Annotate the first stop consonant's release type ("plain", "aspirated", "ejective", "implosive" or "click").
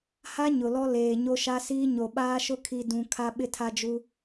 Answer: implosive